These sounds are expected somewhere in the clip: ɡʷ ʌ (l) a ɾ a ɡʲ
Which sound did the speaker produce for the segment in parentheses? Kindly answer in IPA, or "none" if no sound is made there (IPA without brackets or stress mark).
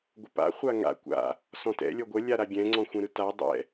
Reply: lʲ